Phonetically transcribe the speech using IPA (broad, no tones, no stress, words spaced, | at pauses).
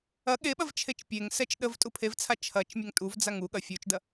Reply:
ɐ ɠeɓɐv t͡ʃʰet͡ʃpʲeŋsɛt͡ʃ ɗəv tʼupʰevt͡sʰa t͡ʃʰɐt͡ʃ mʲɛŋtʼuvd͡zaŋ uɠɐ fʲut͡ʃdɐ